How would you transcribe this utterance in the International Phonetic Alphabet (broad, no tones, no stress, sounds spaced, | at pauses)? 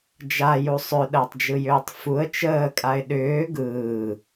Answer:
d͡ʒ a j u sˤ ʏ ɗ əː tˤ d͡ʒ ɯ j ʏː tˤ f u ə̯ t͡ʃ əː kʼ a ɪ̯ ɗ ʏː ɡ ɯː